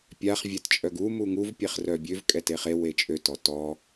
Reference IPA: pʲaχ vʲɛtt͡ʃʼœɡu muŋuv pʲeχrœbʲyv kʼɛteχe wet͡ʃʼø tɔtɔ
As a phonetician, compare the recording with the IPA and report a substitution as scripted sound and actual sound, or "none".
y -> ø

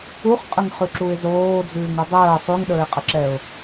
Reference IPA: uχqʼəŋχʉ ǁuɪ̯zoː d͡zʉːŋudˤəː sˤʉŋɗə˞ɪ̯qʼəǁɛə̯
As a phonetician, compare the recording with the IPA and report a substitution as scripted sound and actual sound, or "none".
ə̯ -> ʊ̯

